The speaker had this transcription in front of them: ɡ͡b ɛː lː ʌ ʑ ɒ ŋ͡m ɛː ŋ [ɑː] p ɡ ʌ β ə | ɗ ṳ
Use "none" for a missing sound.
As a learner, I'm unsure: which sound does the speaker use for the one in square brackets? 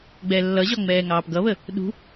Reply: ɑː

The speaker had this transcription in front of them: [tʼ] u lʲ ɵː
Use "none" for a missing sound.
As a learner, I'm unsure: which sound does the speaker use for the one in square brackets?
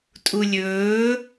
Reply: tʼ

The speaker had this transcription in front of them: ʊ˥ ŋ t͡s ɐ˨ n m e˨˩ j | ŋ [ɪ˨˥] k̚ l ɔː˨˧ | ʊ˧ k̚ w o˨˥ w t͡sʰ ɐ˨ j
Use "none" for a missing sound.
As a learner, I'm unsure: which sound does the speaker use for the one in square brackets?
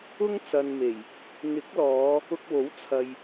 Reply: ɪ˨˥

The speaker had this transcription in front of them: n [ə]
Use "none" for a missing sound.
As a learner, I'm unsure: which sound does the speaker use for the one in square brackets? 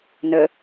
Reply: ə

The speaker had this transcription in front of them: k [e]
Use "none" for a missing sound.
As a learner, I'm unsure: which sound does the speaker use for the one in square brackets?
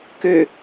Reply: ø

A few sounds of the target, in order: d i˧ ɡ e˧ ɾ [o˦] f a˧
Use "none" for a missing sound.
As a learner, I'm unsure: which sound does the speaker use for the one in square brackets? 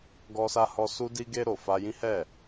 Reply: o˨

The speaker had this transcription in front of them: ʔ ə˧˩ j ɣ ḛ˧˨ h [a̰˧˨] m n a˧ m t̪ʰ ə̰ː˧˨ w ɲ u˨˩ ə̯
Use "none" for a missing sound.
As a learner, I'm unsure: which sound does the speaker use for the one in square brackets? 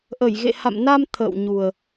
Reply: a̰˧˨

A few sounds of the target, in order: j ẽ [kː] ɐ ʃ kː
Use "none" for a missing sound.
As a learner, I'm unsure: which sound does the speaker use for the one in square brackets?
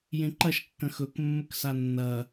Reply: ǃ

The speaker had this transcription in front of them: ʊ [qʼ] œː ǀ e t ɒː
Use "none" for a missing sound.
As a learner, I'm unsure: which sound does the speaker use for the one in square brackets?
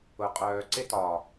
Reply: qʼ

